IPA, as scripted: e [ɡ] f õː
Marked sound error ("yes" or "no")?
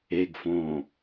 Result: no